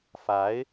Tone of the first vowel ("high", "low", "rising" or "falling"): rising